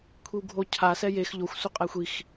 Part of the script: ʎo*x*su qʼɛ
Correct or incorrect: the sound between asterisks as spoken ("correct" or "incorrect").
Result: incorrect